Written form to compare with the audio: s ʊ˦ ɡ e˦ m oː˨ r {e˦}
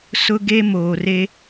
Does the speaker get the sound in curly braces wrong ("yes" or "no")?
no